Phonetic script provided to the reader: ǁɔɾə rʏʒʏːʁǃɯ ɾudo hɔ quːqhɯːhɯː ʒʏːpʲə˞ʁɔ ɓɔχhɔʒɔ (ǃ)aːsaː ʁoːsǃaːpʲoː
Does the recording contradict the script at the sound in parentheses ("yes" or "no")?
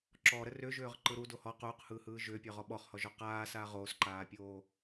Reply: yes